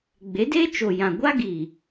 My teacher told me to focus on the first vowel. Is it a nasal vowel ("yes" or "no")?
no